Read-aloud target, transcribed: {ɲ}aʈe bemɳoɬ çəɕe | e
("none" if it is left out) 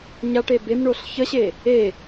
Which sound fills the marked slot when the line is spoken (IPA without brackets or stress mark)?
ɲ